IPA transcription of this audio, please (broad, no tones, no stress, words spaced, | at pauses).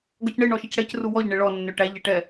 ɡɔcɳɪ ɳɔʃɪcɽɛc ruwɔʎ ɳɪɭɔ nːøʈæʎ ɛʈɛ